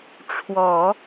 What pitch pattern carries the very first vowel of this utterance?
low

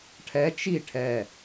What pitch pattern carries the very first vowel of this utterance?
rising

